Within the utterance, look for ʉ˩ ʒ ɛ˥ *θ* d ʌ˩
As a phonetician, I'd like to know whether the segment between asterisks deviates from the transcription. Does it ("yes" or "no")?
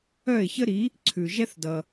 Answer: no